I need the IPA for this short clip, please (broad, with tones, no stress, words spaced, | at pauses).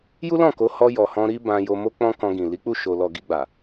ju˦lɔ̃˦˨ ko˨˦ hɔ˧ jɔ˨hɔ̃˧ɾi˦ bã˧jo˧mo˦ k͡pɔ̃˦ kɔ̃˧ɡĩ˨ li˨˦k͡pu˦˨ ʃo˨lɔ˨ ɡi˧ɡ͡ba˨